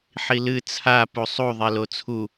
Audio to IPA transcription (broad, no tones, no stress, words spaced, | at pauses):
ħilɨ t͡sʰa pusˤu ðˤelot͡sʰu